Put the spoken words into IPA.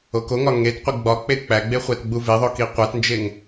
o k o ŋ ɒ ŋ e t qʷ i ɡ͡b ɒ k͡p e k͡p æ ɡ͡b e χʷ æ t ɡ͡b u v e ðˤ o k i qʷ æ t n d͡ʒ e ŋ

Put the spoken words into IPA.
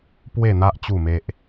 p w e˥˧ n̪ a˦ ʔ t͡ɕ u˥˧ m e˦ ʔ

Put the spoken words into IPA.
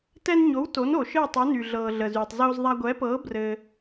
t ɛ˧ n ɲ o˩˥ w t o˩˥ n o˩ ʃ ɘː˥˩ tˤ u˩˥ n y˩ ɮ ɤː˩ ɮ ə˩ z yː˩ tˤ z oː˧ z ðˤ a˧ ɡʷ ɛ˩˥ p ɤː˩˥ b r ɘ˩

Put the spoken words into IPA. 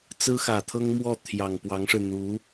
t͡s ɹ̩˥ x ä˨˩ t̪ʰ ɤ˥ ŋ m w ɔ˥˩ t̪ʰ j ɑ˨˩ ŋ p w ɑ˧˥ ŋ ʂ ɻ̩˧ n̪ u˧˥

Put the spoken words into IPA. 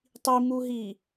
tˤ i m u ɦ i

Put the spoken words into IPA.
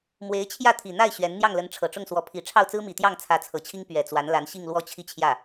m w e˧˥ ɪ̯ t͡ɕʰ j ä˥˩ t̪ʰ i˨˩ n̪ a˥˩ ɪ̯ ɕ ɥ ɛ˧˥ n n̪ j ɑ˥˩ ŋ l ə˧˥ n ʈ͡ʂʰ ɤ˨˩ ʈ͡ʂ ʊ˥˩ ŋ s w ɔ˧˥ pʰ i˨˩ ʈ͡ʂʰ ɑ˥˩ ʊ̯ t͡s ɹ̩˥ m i˨˩ t̪ j ɑ˥˩ ŋ t͡sʰ ä˧˥ t͡sʰ ɤ˨˩ t͡ɕʰ i˥ ŋ p ɥ ɛ˨˩ t͡s w a˧˥ n l a˧˥ n ɕ i˥˧ ŋ l w ɔ˥˧ t͡ɕʰ i˥˧ t͡ɕʰ j ä˥˩

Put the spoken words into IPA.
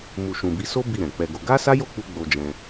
m u˨ ʃ ũ˨ b i˨˦ s o˦ b i˦˨ ɾ ɛ̃˨ k͡p ɛ˧ ɡ o˧ ɡ a˦ s a˦ j o˦˨ k͡p u˧ ɡ͡b o˧ d͡ʒ ɛ̃˧

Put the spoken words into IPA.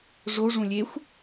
ʐ o ʐ ũ lʲ e xʷ

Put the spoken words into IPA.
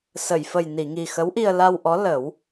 s ə˨˩˨ j f ə˨˩ j n i˨˩˨ ŋ i˨˩ x ə˧˥ w ʔ i˧ ə̯ l a˧ w ʔ ɔ˧˥ l ə˨˩˦ w

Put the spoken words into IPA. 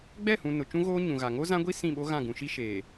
ɡ͡b ɛ˦˨ h ũ˨ n ʊ˨ t͡ʃ ũ˦ ɣ oː˦ ɲ ũ˨ ɣ a˨ ŋ o˦ z ã˦ ɡʷ i˦ s ĩ˦˨ ɓ o˦ ɣ ã˦˨ ɡ ũ˨ ʃ i˦ ʃ eː˨

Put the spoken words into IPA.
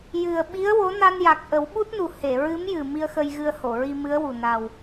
j ɨ˨˩ ə̯ ɓ i˧˥ ə̯ w o˧˥ n a˧ n j a˨˩ k̚ ʔ ə˨˩˦ w ɓ u˦˥ t̚ n u˨˩ h e˨˩˨ ɹ ɨ˧˥ m j ɨ˨˩ m i˧ ə̯ x ə˧ j ɣ ɨ˧ ə̯ h o˨˩˨ ɹ i˧ m ɨ˧˥ ə̯ w u˨˩ n a˨˩ w

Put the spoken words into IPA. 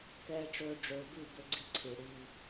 k ɛː˨ ʈ͡ʂ ɵː˨ ɖ͡ʐ ɵː˨ b ʉ˦˨ b ɵ˦ ɡ͡ǀ i˦ ǀʰ i˨ ɽ iː˦

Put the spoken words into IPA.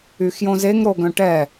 y x j õ z e ŋ ɾ o ɡ œ̃ ʈ ɛ

